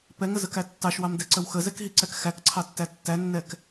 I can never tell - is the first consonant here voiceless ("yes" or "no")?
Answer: yes